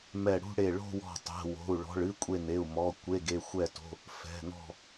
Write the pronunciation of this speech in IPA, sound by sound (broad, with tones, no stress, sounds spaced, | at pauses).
m ɛ˧˩ ɽ ṳ˥˧ ɽ e˧˩ ɭ o̤˥˧ w ɔ̤˧˩ tˤ ɛ̤˩˧˩ w o̤˩˧˩ u̯ ɭ ɔ̤˩˧˩ ɭ ɨ˥˧ kʷʼ e˧˩ n e˩˧˩ u̯ m ɔ˩˧˩ kʷ e˩˧˩ ɡ e˧˩ xʷ ɛ˧˩ t o̤˩˧˩ | f ɛ̤˩˧˩ n ɔ̤˧˩